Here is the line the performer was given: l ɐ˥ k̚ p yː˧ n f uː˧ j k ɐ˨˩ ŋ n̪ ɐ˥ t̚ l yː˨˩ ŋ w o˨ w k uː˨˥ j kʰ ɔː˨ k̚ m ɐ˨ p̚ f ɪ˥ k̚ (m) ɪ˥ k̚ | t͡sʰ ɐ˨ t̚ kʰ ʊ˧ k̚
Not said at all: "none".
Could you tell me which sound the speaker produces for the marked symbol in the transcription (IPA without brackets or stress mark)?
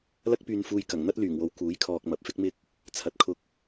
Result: m